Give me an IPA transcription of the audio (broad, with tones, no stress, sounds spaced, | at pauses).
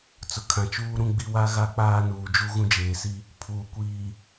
t͡s ʊ˨ kʰ ã˨ t͡ʃ uː˦ ɾ ũ˦ ɡ͡b i˦ w a˦ ɣ a˦ k͡p aː˦ n uː˨ d͡ʒ u˦ ɣ ũ˦ d͡ʒ eː˨ s i˦ | pʰ uː˨ kʷ iː˨